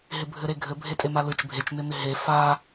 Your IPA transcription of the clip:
ɦ ɪ bʱ ɘ ɾ e ɡʱ ɘ bʱ e tʼ e m a l ɯ t͡ʃ bʱ e t͡ʃ n ɪ n ɪ ɦ e f a

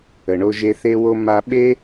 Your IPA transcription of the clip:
ə˩ ɳ o˧ ʒ e˧ θ e˧ w o˧ m a˧ ɓ e˥

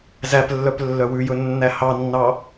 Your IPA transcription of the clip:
z æ p lː œ p lː œ w ʉ j ɵ nː æ h ɑ nː ɑ

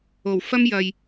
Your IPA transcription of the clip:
o˨˩ w f ɐ˥ m j ɐ˨ j

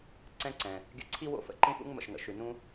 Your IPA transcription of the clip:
ǀ ɛ̃˧ ǀ ɛ̃˩ | ɡʲ ə̰˧ ǀʰ i˥ w o̰˥ f ə̰˩ ǃ ĩ˥ f ṵ˥ ŋ m ə̰˩ ʃ ŋ ə̰˩ ʃ ʉ˩ n ũ˥

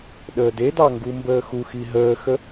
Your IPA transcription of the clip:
ɗ əː d e d ɑ ŋ ɡ u m b əː x u x i ɦ əː x ə

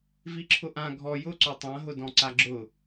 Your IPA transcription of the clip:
v i ǁʰ ʊ ʔ ã ɡʱ ɔ j ʊ ǀ o tˤ ã ɦ ʊ d ɔ̃ ǀ a ɡ͡ǁ ʊ

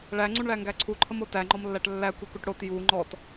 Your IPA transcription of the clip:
ɭ æ ŋ͡ǀ u ɳ ɭ æ ŋ ɡ æ ǀʰ u ǃʰ ə m o t æ ŋ͡ǃ ɔ m lː æ ʈ lː æ kʷ i k u ʈ ɽ o t j u ŋ͡ǃ ɔ t

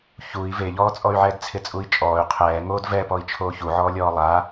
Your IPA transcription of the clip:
ç u i̯ v e ʎ ɔː t͡sʼ ɔ y̯ ʕ ɛː d t͡sʰ ɪ t͡sʼ u i̯ t͡ʃʼ ɔː y̯ qʰ ɛː ŋ oː d v ɛ p ɔ i̯ t͡ʃʰ oː ç u ʕ ɔː lʲ ɔː lˠ a

